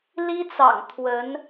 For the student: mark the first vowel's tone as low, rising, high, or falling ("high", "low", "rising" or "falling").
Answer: high